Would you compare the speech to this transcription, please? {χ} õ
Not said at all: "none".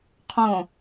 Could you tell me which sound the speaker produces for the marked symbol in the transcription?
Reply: qʰ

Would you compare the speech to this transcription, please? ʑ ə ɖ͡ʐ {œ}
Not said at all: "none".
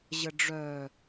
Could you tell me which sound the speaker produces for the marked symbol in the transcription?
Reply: œ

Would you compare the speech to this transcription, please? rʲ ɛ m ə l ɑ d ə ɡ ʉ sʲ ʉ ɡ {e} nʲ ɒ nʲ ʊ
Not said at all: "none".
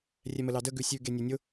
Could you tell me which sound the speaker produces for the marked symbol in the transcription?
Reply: e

